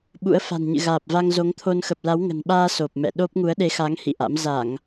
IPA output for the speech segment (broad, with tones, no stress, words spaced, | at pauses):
ɓṵ˧˥ə̯fa̤˨˩nɲɨ̰˧˨ ɣaː˨˩p̚va˧ŋzo˨˦ŋt̪ʰo˧n xə˨˩p̚la˨˦wŋə̤˨˩nɓaː˧ so˨˩p̚mɛ̰˧˨ ɗo˦˥p̚ ŋu˨˦ə̯ɗe˨˦xaː˨˦ŋ hḭ˧˨ʔa̰˧˥m za˧˩˨ŋ